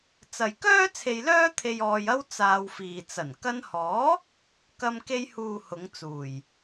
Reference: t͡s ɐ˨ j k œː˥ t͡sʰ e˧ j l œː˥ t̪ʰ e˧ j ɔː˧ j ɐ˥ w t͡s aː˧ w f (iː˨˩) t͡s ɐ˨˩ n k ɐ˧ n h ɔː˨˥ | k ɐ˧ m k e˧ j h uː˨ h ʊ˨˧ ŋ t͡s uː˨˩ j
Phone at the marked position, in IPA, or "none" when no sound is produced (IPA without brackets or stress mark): iː˨